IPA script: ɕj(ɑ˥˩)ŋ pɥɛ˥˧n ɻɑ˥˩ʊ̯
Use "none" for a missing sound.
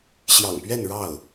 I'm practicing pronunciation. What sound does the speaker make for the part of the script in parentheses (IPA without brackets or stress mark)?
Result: ɑ̰˨˩